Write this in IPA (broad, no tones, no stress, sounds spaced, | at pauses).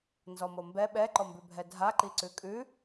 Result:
n z ɔ m o m b ɛ ɓ ɛ ǃ ɔ m b ʉ bʱ ɛ dʱ a ǃ i ǀ ʉ kʼ ʉ